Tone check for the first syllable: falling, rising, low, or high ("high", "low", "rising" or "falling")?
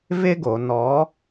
high